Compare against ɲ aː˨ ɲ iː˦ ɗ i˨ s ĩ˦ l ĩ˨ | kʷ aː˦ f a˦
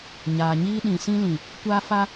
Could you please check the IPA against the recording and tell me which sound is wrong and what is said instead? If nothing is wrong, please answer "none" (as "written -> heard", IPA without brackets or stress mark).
i˨ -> ĩ˨